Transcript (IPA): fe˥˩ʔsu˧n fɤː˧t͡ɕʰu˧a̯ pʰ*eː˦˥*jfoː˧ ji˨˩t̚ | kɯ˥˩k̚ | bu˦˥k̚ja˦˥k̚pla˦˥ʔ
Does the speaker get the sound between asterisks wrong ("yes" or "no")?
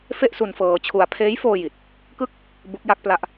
no